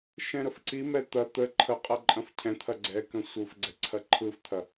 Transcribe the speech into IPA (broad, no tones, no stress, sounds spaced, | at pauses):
ʃ ɛ̃ ɾ ə f ǀ i m ɛ t̪ ɐ t̪ ə ǃʰ ə qʼ ɐ ǃʼ ɐ̃ f cʰ ɛ̃ t̪ʰ ɐ ɡ͡ǀ ɛ k ə̃ sʷ ɯ f ɡ͡ǀ ɛ ǀʰ ɐ ǃʰ ɯ f t̪ʰ ɐ